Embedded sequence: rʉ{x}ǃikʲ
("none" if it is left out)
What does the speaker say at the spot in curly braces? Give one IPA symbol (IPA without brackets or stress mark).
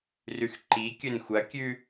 x